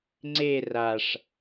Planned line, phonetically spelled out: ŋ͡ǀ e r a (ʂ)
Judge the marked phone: correct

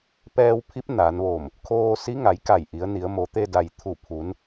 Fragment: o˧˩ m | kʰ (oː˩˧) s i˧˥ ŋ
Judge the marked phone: incorrect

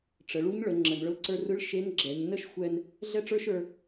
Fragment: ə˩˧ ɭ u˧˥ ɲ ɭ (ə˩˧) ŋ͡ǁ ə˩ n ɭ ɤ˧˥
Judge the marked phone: correct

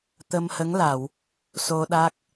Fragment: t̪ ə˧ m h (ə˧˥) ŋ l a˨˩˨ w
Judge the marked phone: correct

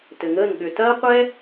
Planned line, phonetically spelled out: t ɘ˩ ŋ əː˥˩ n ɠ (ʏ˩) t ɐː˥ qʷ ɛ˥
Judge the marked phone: correct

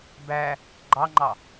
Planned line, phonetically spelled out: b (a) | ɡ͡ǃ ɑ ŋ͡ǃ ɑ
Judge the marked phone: incorrect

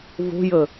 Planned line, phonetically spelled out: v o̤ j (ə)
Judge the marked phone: correct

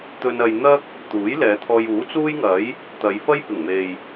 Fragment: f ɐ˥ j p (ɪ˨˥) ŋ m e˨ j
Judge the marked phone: incorrect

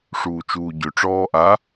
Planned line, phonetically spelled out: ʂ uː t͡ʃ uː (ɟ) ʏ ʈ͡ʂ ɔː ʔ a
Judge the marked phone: correct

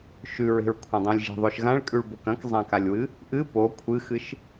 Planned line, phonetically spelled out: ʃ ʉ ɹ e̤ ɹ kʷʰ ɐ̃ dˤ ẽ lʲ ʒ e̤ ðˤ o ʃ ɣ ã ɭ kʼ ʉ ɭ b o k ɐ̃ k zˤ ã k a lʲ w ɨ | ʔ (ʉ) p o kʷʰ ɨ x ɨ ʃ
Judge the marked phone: incorrect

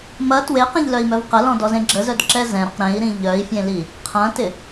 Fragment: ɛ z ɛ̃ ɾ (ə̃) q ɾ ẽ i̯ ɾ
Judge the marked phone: incorrect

